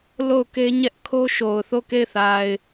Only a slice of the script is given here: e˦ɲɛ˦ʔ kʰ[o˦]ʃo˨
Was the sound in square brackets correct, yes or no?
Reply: yes